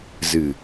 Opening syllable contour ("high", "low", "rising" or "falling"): low